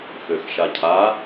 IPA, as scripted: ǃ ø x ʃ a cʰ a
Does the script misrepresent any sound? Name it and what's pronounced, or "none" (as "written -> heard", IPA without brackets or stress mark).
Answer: ǃ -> x